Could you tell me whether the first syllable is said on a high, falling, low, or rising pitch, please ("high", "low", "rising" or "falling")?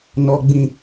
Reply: high